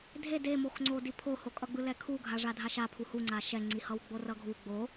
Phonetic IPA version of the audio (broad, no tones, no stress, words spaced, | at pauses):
dʱed emoxŋ͡ǀodi pʰohokʼʌɡ͡bɯ lɛkʰuɡʱa ʐadʱaʃapʰu huŋ͡ǀa ʃɛŋ͡ǀihʌw ɡ͡borʌɡʱu ɡ͡bo